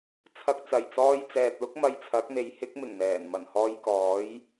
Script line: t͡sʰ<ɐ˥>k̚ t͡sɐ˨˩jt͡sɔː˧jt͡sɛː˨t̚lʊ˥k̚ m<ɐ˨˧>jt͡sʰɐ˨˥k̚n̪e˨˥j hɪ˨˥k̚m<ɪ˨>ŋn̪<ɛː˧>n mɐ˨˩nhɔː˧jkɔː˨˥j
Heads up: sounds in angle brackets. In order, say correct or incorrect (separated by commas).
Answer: incorrect, incorrect, incorrect, incorrect